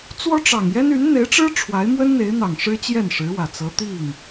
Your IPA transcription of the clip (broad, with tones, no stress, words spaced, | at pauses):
t͡swɔ˥ʈ͡ʂɑ˨˩ŋjɛ˥n y˧˥nn̪e˧˥ɪ̯ʈ͡ʂɻ̩˥ ʈ͡ʂʰwa˧˥ɪ̯mwə˥nn̪e˧˥ɪ̯n̪ɑ˨˩ŋ ʂɻ̩˥t͡ɕjɛ˥˩nʂɻ̩˧˥wä˨˩ t͡sɤ˧˥t̪i˥˩ŋ